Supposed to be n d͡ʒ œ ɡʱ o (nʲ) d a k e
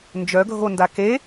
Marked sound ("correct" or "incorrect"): incorrect